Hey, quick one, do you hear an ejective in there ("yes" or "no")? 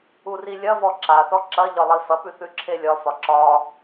no